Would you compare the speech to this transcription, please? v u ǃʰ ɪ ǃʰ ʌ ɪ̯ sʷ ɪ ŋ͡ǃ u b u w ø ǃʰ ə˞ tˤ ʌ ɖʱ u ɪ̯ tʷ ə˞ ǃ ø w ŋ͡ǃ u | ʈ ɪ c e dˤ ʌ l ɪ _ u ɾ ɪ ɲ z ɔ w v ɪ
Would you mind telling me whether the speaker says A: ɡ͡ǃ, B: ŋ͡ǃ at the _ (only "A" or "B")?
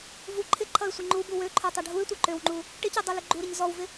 A